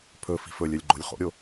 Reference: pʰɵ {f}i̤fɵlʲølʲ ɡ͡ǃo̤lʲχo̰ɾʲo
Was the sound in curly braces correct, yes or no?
yes